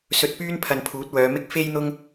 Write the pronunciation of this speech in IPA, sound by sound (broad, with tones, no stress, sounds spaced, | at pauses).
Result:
s ɵ˨ t̚ p yː˥ n pʰ ɐ˧ n pʰ uː˨˥ t̚ w œː˨˧ m ɪ˥ k̚ f e˥ j n̪ ʊ˥ ŋ